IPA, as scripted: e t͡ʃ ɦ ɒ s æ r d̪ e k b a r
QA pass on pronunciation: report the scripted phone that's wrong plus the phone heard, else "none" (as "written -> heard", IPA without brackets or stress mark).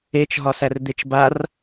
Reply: k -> t͡ʃ